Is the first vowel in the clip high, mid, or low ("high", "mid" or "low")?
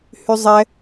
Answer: high